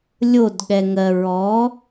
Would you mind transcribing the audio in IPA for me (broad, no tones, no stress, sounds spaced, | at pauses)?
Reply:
lʲ o d ɠ ɛ ŋ ɜ ɹ ɔ